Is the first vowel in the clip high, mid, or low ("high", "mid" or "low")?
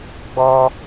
mid